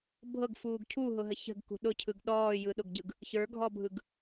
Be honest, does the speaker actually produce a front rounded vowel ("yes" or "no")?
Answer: no